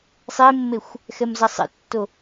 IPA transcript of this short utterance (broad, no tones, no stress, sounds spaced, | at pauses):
sˤ e mː e xʷ | x ɛ m z ʌ sˤ ḛ tː o